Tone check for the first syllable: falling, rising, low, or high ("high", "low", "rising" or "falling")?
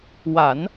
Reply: low